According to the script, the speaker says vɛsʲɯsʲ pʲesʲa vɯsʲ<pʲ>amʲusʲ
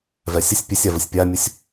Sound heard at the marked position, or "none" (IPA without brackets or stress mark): pʲ